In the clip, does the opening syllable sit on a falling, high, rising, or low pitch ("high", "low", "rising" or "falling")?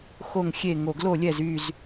low